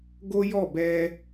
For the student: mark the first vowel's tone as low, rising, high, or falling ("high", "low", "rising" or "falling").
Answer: high